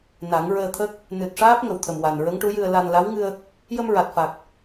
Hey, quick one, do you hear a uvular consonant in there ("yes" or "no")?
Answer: no